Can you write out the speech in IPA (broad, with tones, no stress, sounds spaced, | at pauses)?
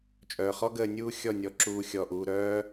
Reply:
t͡ʃʼ œː˨ χ ɔ˦ ɡ əː˧ nʲ uː˦ xʲ ɔ˦˨ nʲ ɔ˨˦ ǁ uː˦ xʲ ɔ˦˨ ʔ uː˦ ɾ œː˦